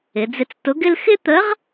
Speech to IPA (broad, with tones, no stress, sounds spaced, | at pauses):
ɪ˩˧ d͡z ɪ˧ t͡s t ʊ˧˥ ɡ ɪ˥ l x ɪ˥ t̪ ə˧˥ ʁ